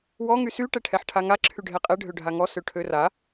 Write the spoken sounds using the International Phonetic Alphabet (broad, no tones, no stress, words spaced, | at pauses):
wɔ ŋysy ʈɛʈʰɛħʈʰaŋa ǁʰyɖʱɛqʼɛ ɖʱøɖʱaŋɔ søʈʰøra